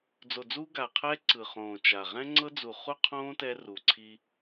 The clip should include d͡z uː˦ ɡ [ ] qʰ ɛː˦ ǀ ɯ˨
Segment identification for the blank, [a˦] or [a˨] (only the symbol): a˨